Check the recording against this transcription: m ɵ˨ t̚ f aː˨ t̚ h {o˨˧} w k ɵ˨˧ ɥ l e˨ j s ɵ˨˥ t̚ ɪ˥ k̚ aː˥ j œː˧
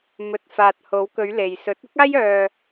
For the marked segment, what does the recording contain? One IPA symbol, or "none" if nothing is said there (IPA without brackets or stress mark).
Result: o˨˧